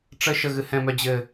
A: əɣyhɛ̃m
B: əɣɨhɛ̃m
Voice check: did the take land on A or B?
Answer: B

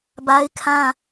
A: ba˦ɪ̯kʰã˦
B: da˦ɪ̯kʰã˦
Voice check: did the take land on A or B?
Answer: A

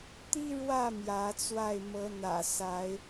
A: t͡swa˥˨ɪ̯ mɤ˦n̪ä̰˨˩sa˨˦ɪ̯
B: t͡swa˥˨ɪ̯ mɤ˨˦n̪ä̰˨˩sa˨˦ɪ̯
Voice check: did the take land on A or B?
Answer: B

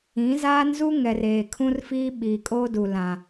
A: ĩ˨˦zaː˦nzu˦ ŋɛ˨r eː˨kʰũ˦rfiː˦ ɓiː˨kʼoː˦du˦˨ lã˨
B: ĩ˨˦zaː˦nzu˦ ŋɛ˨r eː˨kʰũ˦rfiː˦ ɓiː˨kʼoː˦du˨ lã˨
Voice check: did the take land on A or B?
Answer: B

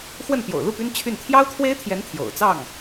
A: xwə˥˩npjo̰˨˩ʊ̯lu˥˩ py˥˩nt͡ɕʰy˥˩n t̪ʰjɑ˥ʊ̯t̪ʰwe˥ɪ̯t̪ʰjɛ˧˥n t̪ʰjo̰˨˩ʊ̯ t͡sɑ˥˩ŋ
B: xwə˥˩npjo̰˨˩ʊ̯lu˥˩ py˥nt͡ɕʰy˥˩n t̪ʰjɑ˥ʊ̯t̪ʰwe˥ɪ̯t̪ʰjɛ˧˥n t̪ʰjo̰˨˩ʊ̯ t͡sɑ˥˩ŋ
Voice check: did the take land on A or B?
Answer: B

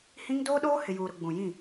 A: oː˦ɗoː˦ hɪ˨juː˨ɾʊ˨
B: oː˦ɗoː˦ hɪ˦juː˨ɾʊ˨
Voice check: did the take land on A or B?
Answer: A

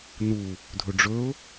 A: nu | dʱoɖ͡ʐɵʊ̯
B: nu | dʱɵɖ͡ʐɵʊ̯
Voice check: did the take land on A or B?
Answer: B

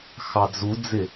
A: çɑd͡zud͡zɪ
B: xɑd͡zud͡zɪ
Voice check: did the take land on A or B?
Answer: B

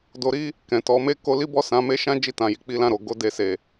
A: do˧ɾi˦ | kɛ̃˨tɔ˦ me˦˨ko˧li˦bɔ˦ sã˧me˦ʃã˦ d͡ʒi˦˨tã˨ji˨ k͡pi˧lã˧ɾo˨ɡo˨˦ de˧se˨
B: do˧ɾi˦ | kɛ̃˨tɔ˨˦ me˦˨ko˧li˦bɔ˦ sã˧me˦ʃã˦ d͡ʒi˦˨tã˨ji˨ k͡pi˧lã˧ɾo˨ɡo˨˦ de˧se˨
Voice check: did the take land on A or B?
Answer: B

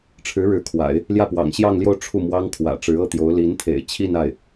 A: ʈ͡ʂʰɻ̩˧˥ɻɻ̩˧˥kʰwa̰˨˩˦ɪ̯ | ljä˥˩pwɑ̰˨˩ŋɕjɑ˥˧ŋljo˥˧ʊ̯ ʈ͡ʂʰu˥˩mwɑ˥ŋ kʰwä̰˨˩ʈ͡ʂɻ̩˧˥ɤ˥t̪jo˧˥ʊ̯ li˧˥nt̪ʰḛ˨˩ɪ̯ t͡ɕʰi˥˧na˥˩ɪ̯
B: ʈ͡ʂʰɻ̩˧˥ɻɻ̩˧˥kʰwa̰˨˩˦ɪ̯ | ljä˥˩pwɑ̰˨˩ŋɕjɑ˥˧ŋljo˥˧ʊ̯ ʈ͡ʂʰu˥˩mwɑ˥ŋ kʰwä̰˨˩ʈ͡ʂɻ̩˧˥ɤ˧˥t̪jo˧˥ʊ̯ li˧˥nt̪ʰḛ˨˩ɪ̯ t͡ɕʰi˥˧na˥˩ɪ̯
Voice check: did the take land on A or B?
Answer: A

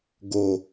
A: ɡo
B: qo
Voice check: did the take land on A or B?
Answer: A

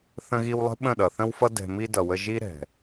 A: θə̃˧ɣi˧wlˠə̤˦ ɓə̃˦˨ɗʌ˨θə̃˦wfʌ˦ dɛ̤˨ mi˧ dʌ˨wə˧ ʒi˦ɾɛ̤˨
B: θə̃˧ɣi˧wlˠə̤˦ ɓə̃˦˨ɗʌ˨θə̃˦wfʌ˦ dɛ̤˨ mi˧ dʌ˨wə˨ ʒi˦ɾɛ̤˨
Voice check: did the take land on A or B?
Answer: A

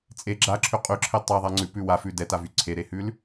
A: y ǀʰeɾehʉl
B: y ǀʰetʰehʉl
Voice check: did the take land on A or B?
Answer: A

